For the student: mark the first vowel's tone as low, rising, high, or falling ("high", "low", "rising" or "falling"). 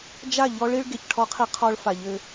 falling